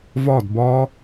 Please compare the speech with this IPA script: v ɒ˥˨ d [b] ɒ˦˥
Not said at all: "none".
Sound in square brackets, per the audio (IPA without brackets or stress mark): b